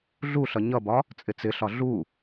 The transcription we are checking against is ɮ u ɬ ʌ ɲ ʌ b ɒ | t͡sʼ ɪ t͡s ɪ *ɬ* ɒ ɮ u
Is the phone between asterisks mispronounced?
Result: no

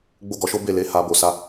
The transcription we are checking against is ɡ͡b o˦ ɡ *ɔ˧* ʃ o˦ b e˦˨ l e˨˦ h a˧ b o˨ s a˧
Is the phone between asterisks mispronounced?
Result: no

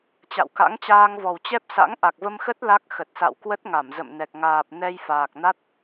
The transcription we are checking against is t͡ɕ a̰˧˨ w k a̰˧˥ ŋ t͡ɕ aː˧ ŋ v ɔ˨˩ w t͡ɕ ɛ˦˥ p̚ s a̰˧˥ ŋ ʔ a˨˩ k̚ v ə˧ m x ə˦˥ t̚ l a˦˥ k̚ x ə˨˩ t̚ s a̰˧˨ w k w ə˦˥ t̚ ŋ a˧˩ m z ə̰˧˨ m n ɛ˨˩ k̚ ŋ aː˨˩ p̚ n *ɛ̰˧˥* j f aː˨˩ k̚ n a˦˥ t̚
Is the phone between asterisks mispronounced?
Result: yes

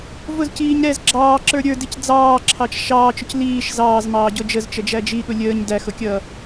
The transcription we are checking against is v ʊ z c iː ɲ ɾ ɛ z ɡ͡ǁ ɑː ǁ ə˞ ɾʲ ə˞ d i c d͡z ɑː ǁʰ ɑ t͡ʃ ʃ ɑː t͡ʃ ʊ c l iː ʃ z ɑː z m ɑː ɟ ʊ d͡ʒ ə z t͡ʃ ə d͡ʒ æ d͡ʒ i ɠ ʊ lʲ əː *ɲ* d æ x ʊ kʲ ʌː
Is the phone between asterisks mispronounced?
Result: no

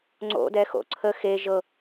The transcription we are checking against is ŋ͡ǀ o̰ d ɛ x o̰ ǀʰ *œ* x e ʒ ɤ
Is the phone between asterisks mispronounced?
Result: yes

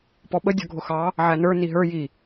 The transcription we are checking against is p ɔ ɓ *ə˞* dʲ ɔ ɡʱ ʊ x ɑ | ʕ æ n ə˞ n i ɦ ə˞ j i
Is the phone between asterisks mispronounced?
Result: yes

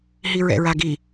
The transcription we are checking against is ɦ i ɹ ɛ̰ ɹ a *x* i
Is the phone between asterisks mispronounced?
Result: yes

